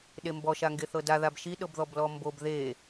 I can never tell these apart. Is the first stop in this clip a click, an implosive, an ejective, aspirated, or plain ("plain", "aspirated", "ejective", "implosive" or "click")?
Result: implosive